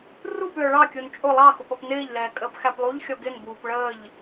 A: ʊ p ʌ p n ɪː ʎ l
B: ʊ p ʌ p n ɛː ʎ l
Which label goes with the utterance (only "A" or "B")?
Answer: A